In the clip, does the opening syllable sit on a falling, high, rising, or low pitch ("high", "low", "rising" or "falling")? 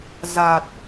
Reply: low